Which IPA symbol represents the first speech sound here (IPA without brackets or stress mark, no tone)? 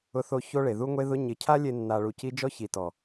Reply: ʊ